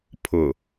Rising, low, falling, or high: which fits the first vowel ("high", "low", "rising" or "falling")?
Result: low